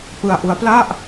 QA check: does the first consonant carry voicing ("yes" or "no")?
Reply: no